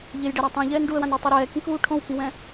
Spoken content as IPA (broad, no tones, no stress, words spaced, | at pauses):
ʎejɖɛɾa tˤũʎɛːn ɖuə̯wãnitˤe ɾɛːkĩkuː ʈʰõwkĩwɛ̃